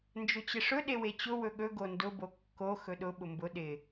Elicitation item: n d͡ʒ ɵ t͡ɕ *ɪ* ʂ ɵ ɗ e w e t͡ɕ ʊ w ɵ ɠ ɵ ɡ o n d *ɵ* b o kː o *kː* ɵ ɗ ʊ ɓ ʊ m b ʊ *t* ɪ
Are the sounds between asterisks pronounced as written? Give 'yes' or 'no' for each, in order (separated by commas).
yes, no, no, no